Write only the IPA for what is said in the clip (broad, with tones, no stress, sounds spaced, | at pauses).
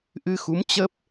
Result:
ʔ ɨ˧ x u˨˦ m t͡ɕ ə˦˥ p̚